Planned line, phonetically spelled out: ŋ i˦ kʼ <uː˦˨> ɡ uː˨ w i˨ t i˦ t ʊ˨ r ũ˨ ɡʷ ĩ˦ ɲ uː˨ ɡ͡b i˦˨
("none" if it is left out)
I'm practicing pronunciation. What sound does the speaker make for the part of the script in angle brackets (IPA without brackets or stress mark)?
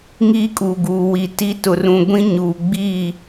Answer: uː˨